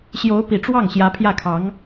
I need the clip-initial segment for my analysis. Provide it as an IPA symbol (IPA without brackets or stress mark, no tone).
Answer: ɕ